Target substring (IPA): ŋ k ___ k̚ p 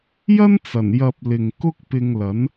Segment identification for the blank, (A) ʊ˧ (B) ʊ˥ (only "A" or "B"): B